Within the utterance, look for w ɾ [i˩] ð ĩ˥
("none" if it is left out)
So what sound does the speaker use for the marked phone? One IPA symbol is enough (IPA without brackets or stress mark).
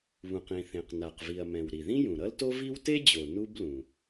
i˩